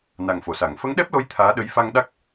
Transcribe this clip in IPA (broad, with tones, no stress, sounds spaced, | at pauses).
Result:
n a˨˩ ŋ f o˨˩˨ s a˨˩˨ ŋ f ə˧˥ ŋ ɗ ɛ˦˥ p̚ l o˧˥ j t̪ʰ aː˧˥ ɗ ə˧˥ j f a˧ ŋ ɗ a˦˥ k̚